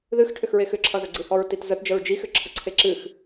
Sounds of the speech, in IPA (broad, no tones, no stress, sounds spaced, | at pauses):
ð ɨ x ʈʰ ʏ x ɹ e x ʏ ǁʰ ʌ z ə ɡ͡ǀ ɨ h ɔ ɹ t i t z ə t d͡ʒ ə ɹ d͡ʒ i x ʏ ǁʰ ə ǀʰ e ǁ ɨ x